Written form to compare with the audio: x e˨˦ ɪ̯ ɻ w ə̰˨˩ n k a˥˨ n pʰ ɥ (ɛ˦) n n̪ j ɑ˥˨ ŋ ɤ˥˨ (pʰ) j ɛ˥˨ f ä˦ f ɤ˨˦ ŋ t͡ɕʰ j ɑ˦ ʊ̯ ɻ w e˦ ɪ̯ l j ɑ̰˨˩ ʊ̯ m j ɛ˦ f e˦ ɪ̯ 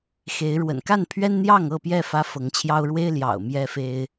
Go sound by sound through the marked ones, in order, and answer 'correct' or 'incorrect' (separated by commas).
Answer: correct, incorrect